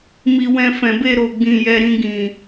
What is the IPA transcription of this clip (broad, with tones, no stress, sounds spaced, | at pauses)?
m i˨ w ɛ̃˧ f ɛ̃˨ b e˧ ɾ o˨ ɡ͡b ĩ˨ j ɛ˨ ɾ ĩ˧ ɡ ĩ˨